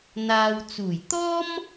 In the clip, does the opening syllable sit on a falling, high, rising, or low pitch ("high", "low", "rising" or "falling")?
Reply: low